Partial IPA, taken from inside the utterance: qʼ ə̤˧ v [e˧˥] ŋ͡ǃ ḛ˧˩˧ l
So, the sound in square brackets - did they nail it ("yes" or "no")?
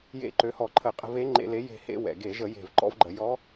yes